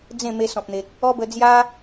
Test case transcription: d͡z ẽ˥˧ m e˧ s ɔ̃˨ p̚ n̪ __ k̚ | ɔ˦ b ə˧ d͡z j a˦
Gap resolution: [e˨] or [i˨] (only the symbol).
e˨